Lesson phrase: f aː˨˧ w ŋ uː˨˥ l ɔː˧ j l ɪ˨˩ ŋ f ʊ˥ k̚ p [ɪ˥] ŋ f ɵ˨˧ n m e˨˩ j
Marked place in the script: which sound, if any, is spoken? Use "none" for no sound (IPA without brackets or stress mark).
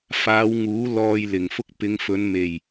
ɪ˨˧